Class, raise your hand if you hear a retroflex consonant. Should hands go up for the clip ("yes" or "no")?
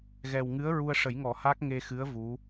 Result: yes